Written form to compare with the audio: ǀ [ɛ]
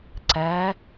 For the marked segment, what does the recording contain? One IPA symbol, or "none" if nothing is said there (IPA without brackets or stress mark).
ɛ